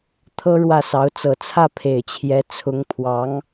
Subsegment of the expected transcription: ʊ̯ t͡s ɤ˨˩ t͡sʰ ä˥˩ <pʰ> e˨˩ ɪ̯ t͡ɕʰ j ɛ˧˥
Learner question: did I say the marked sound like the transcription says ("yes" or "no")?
yes